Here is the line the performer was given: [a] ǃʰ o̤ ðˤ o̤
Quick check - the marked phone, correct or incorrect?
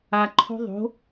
correct